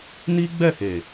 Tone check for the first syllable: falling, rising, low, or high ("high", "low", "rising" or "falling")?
high